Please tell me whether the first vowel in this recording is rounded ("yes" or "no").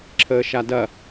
no